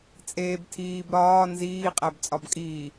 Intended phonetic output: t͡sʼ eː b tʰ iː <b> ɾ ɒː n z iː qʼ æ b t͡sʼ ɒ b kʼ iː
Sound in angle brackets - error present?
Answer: no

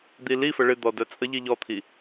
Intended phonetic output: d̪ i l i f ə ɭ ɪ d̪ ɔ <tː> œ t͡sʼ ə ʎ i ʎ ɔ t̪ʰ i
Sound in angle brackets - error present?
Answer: yes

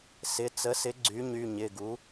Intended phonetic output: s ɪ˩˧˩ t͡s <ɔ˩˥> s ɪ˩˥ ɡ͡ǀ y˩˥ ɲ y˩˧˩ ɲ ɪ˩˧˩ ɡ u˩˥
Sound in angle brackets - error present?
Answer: yes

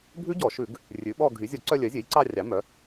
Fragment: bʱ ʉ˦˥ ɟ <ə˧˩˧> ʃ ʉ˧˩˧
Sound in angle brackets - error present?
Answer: yes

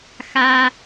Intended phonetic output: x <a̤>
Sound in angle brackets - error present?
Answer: yes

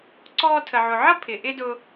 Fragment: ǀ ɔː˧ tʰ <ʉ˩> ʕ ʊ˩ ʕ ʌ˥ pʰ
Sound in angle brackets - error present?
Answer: yes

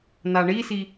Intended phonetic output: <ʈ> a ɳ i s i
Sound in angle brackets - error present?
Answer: yes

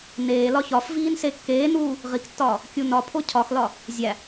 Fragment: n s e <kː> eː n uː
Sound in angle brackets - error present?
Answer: no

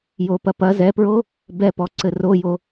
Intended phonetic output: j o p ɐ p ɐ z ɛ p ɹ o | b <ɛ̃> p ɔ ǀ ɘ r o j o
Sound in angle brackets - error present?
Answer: yes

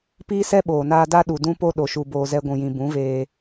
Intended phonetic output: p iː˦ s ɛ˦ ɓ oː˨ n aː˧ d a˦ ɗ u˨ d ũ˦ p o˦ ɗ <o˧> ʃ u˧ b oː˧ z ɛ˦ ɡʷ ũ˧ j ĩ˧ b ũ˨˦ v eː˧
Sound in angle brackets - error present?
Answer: no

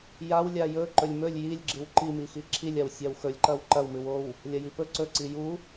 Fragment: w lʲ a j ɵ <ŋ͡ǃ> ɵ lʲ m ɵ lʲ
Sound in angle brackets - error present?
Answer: yes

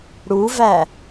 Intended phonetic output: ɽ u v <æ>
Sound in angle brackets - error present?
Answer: no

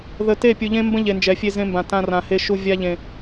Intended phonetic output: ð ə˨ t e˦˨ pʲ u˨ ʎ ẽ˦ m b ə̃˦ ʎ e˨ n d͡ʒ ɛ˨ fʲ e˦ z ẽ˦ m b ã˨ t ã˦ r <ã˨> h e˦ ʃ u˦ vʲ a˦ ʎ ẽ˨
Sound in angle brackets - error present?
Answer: no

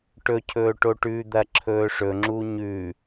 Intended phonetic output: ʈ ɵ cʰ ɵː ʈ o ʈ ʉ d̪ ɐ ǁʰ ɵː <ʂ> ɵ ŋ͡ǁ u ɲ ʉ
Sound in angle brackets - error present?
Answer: no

